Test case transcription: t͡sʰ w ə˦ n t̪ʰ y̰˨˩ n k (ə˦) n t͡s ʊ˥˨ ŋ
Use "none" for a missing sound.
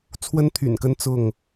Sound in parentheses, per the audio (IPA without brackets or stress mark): ə˦